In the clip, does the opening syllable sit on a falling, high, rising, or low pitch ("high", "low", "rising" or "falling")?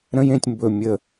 high